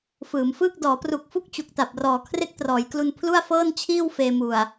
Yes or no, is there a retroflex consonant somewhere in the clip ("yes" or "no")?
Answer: no